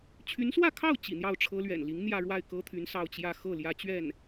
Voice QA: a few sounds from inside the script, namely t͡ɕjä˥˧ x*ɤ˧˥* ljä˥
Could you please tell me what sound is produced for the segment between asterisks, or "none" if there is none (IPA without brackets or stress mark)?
ɤ˥˩